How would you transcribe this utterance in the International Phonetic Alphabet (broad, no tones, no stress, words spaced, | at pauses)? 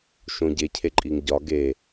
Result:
ʃõɟe cʰeǃʼiŋɟɒ ɡe